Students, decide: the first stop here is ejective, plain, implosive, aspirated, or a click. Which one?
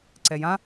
click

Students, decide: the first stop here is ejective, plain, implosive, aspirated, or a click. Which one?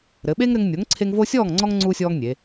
implosive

